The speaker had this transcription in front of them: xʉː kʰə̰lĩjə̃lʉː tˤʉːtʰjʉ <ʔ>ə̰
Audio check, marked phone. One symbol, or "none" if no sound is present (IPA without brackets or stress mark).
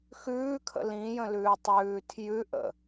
ʔ